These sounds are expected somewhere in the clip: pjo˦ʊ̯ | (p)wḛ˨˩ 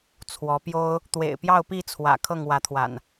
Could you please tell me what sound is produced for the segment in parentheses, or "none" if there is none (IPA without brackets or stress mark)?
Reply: t̪